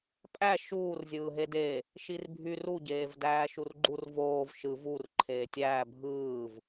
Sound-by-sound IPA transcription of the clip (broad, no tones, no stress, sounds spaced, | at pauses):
pʼ æ ʃ uː r zʲ ɯː ɦ e d e | ʃ i r bʱ y r u ɟ eː v d æː ʃ u r ɡ͡ǃ u r v oː v ʃ ɯ v u r ǃʰ eː tʲ æː bʱ ɯː v